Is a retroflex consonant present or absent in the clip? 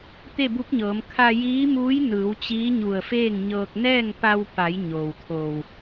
absent